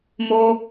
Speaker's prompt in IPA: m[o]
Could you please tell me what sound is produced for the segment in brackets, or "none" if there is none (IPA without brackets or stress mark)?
o